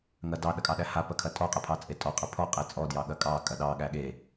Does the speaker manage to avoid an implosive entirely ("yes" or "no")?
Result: no